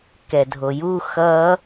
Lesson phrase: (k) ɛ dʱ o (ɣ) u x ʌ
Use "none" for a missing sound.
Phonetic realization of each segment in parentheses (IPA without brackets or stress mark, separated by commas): k, j